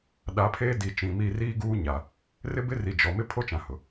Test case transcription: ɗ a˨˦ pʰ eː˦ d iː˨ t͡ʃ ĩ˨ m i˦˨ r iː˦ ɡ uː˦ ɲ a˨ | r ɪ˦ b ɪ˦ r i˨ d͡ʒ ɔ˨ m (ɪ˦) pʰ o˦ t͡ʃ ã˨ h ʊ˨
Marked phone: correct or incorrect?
correct